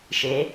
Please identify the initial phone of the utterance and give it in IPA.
ʃ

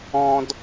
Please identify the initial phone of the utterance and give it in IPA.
ɔ̃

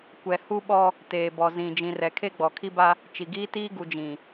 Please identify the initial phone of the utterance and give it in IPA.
kʷ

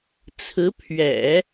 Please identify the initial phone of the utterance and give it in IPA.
t͡sʰ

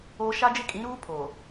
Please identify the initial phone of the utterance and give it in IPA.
oː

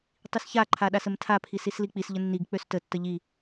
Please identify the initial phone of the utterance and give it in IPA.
tˤ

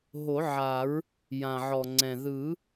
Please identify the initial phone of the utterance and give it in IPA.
ɦ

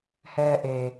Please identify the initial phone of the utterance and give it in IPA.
h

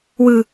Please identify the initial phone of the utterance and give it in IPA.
w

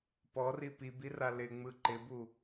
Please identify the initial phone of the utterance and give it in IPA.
p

